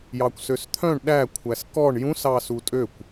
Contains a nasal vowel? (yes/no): yes